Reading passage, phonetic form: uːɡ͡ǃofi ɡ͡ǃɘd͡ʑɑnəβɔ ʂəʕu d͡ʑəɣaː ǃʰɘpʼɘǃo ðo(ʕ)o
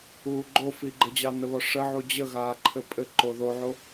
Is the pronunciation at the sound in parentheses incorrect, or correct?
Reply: correct